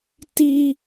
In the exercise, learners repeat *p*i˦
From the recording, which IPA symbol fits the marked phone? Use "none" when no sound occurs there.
t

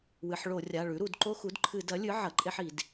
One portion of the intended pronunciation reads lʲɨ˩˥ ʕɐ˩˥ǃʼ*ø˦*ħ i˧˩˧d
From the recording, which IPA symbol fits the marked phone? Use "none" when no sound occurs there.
e˦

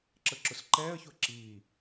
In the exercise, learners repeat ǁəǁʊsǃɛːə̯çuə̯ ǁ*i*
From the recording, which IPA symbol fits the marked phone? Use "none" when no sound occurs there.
iː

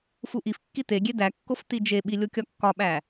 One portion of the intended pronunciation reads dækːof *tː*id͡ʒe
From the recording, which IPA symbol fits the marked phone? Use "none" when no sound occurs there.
t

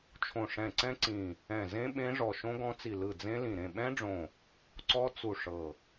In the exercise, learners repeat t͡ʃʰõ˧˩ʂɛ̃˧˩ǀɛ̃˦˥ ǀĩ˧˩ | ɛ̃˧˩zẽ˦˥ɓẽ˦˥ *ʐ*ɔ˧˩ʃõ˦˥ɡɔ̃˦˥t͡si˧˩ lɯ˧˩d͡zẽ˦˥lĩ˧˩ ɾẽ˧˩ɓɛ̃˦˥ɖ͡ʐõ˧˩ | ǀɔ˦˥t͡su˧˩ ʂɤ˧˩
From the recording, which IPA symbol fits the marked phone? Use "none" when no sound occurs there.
ʐ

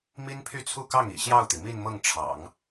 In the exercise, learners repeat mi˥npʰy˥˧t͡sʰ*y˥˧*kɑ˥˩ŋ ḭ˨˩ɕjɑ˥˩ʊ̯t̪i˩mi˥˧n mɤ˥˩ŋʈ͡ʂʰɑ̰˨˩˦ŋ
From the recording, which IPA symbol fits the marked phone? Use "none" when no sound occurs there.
u˥˧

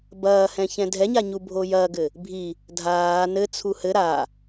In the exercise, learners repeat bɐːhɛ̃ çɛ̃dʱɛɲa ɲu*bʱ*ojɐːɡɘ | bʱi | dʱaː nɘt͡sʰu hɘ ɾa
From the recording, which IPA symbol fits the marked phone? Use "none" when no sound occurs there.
bʱ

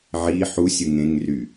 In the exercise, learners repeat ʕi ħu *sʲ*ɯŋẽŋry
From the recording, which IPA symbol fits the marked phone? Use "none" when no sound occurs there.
sʲ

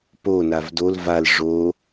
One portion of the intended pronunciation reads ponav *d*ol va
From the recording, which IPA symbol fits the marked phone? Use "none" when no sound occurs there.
d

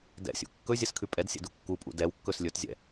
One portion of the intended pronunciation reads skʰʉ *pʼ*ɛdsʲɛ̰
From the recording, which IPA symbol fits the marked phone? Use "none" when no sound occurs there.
pʼ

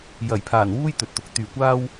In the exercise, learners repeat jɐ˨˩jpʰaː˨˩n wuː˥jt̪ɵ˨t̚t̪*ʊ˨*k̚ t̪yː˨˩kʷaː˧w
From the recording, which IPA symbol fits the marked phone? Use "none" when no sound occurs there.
ʊ˨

